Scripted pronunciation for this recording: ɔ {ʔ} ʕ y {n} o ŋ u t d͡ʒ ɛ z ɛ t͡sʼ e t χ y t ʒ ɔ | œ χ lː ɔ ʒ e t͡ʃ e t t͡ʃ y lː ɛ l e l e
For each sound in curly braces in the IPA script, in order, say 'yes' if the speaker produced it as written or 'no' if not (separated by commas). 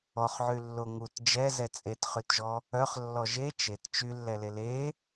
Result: no, no